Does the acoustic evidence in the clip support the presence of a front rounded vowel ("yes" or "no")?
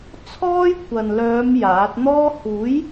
yes